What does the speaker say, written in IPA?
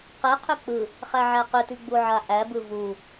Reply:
q ɛ qʰ ʏ k͡p ɯ | χ æ ʕ æ q ʏ t i ɡ͡b u ʕ a ʔ æ b ɯ v u

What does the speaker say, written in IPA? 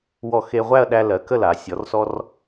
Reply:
w ɔ˧˩ x e˧ ʁʷ æ˥˧ ɐ̯ ɗ æ˧ l ɜ˩˧ k ə˥˧ l a˩˧ sʲ ɔ˩˧ r s ɔ˧ r

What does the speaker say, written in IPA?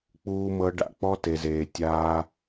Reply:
k͡p uː˧ m ɤ˧ ɖ a̰˨ k͡p ɔ˦ t e˨ z eː˨ tʲ aː˧

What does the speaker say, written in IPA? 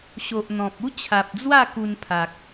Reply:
ɕ o˨ ʔ n̪ ɔ̃˨ p̚ u˦ t͡ɕʰ a˨ p̚ d͡z w a˥˧ k u˧ n pʰ a˨ k̚

